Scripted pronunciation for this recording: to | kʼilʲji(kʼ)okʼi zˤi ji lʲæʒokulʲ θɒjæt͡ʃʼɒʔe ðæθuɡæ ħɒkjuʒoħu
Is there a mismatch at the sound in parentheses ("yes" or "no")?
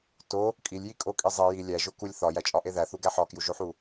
no